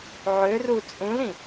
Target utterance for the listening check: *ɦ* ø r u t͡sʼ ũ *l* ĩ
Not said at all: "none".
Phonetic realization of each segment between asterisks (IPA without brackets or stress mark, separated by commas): ʕ, l